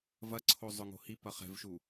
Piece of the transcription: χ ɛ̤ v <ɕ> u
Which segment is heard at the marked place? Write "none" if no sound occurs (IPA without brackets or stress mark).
ʃ